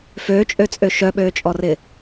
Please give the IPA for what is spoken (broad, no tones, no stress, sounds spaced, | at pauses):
f øː t͡ʃʼ ø t͡sʼ ø ʃ œ ɓ øː t͡ʃʼ ɔ r ɪ